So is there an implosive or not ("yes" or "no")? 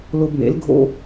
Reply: no